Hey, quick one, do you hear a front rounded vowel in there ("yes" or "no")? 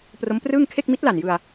no